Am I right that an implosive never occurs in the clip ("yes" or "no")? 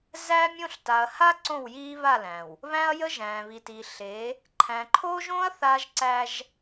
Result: yes